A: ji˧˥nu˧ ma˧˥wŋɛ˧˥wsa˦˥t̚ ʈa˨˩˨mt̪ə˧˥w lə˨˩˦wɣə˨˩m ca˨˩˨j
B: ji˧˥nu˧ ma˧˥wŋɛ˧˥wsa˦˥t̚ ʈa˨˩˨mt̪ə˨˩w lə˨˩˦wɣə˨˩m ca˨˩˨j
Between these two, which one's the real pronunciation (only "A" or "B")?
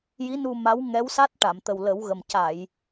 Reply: B